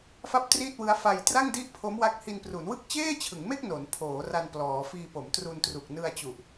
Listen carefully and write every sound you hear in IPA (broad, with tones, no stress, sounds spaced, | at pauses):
f a˥˩ p̚ t r i˥˩ t̚ w ɯ˦˥ a̯ f a˧ j t r a˥˩ ŋ d i˥˩ ʔ pʰ o˦˥ m w a˦˥ k̚ h i˧ n p r u˩˦ n w ɯ˥˩ k̚ t͡ɕ eː˥˩ t͡ɕʰ ɯ˩˦ ŋ m e˥˩ k̚ n o˩˦ n pʰ oː˩˦ r a˧ n p l ɔː˩˦ f iː˧ p o˩˦ m t r u˧ n t r u˨˩ k̚ n ɯ˧ a̯ t͡ɕ u˨˩ ʔ